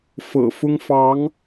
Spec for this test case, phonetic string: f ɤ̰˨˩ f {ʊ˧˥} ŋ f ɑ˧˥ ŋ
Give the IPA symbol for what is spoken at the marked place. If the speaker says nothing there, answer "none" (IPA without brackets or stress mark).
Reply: ʊ˥